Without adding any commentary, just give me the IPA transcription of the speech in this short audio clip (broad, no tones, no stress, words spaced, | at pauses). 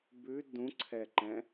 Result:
bʉ dũǀʰɛǃɛ̃